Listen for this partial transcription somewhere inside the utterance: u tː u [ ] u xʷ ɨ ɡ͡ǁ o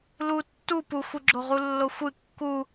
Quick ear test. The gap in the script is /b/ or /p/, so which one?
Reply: p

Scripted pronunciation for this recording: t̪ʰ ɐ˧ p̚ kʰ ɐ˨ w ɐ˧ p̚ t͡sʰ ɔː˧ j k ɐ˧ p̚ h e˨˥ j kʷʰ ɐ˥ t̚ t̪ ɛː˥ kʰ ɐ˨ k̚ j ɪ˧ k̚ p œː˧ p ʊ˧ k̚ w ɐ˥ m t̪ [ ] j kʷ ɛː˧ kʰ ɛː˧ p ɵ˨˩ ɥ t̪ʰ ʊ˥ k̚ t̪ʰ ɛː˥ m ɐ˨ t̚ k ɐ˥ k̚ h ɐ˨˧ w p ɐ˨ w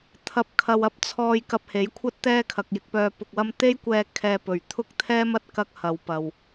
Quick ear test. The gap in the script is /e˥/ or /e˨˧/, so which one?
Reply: e˥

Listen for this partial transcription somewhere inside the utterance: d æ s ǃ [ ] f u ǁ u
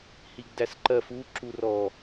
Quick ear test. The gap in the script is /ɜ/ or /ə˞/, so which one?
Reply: ɜ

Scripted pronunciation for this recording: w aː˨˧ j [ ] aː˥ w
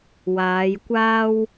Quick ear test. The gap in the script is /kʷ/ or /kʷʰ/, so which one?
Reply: kʷ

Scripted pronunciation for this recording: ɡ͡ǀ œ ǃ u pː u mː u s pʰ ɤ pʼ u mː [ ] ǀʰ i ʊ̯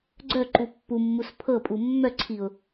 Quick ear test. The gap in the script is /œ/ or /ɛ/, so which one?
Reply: œ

